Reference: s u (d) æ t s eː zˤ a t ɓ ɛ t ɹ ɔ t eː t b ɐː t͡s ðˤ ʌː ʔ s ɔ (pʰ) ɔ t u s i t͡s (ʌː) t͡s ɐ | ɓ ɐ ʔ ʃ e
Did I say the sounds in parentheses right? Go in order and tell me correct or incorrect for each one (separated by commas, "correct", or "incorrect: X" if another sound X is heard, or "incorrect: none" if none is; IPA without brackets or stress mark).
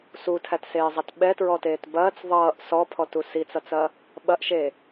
incorrect: tʰ, correct, incorrect: ʌ